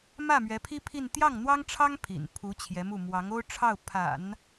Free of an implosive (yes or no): yes